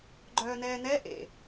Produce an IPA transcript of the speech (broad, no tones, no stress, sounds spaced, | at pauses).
ɡ͡ǃ œː n ɛː n ɛ ʔ ḛ